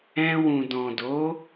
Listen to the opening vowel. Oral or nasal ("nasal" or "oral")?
nasal